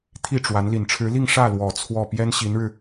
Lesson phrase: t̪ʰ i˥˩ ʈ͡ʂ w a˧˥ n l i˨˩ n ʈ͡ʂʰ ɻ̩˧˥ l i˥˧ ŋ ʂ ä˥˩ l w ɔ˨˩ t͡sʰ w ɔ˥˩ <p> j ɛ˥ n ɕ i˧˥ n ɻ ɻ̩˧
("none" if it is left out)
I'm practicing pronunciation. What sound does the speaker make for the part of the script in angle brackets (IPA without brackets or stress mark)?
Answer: p